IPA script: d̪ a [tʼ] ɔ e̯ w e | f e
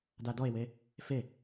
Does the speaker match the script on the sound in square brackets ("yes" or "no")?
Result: no